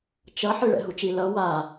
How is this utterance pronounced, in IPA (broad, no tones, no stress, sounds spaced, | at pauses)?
t͡ʃ ʌ ħ ɯ ɭ ɛ̰ ɦ u t͡ʃ i l ʌ w a